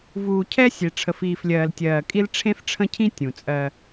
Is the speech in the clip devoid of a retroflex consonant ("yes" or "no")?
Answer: no